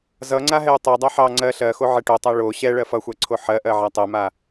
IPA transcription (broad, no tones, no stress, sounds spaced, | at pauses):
z ʌ ŋ͡ǀ a ɦ ɛ u̯ tˤ ɛ dˤ ɑ ħ ɑ ŋ͡ǀ ɜ ɬ ɜ x o ʕ ɛ ʈ o tˤ a ɭ o ɕ ɛ ɭ ɜ f ʌ xʷ ɜ ǀʰ o ħ ɜ ʔ ɜ ʕ a tˤ ɛ m a